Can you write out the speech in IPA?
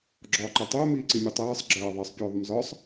ɡ͡ǁ ɒː ǃ ɛ tˤ ʊː m iː ǀ i mʲ u tˤ ɜː sˤ ɡ͡ǁ ɜː ðˤ ɑ sˤ pʲ ʊː ðˤ ʊ m z ɒ sˤ

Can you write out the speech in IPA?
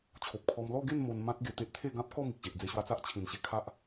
t͡ɕʰ o˨ p̚ kʰ ɔ˧ m l ɔ˥˧ ɡ e˥˧ n m o˧ n m ã˦ t̚ ɡ e˨˩ t̪ e˦ ʔ t̪ʰ e˥˧ ɡ ã˦ p̚ k ɔ˥˧ m i˨ k̚ ɕ e˨ ʔ d͡z e˧ ɕ w a˧ t͡s a˦ ʔ t͡ɕʰ ĩ˨˩ n ɕ e˧ kʰ a˦ ʔ

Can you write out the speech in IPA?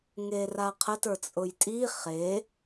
ŋ e r a qʰ ə t ə˞ t͡sʼ ʊ j tʼ i χ e

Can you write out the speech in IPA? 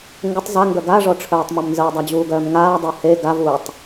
ŋ ɡ ə tˤ z a ŋ ɡ œ ɡ a ʐ ɔ ʈ͡ʂʰ œː tˤ m ɔ m n z ə w dˤ a d͡ʑ uː ɡ œː m ŋ aː dˤ əː h e ɡ a v uː tˤ

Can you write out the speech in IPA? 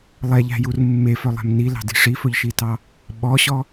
lˠ ɛ ʎ æ̤ j u r mː e f œ lˠ æ̤ m n i l ɑ̤ d i̤ ʂ i f ɵ ʎ ʃ i t ɑ | ɓ ɔ ɕ ɔ

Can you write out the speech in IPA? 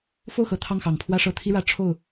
f o˥˩ ʊ̯ x ɤ˨˩ t̪ʰ ɑ˥˩ ŋ x ɑ˨˩ ŋ pʰ w ä˥˧ ʂ ɤ˥˩ t̪ʰ i˥ ɻ ä˧˥ ʈ͡ʂʰ o˥˩ ʊ̯

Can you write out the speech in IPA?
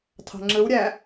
tʰ ɑ̤ ŋ͡ǁ ɯ w ɾʲ æ

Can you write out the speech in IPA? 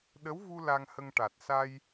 ɗ ə˧˥ w v u˧ l a˧ ŋ h ə˧ ŋ ʈ a˨˩ t̚ s a˧ j

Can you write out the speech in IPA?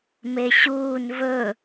m e ɕ uː n v ɵ

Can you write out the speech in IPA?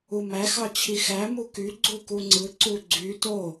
u m æ x ɑ t͡ɕʰ i x æ m u k y ɡ͡ǀ u k u ŋ͡ǀ ɯ ǀ u ɡ͡ǀ y t o

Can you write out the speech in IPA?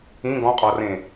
ĩ ɡ ɔ̃ qʼ ɔ r ẽ

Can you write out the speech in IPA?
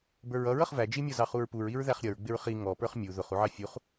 b ə˞ ɹ ʌ ɹ ʌ χ v æ d͡ʒ i mʲ ɔ z ɑ χ u ɹ p u ɹ i ɹ ð æ χ ɾʲ ʌ ɹ ɡ͡b ɪ ɹ χ i ŋ ɔ p ə˞ χ mʲ u ð ʊ χ u ʕ ɑ fʲ u χ

